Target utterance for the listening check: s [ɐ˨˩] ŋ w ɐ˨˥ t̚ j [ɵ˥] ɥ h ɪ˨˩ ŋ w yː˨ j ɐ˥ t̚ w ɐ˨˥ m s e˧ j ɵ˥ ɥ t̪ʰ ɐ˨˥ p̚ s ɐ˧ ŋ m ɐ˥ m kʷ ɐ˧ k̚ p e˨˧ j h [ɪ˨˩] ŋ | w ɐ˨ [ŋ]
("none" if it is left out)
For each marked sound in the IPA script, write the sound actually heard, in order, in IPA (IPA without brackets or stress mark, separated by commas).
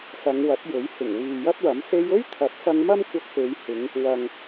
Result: ɐ˨˧, ɵ˨˥, ɪ˨˧, ŋ